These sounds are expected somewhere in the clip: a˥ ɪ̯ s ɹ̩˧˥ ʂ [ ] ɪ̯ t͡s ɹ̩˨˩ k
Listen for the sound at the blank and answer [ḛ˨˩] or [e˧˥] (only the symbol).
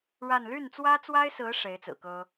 e˧˥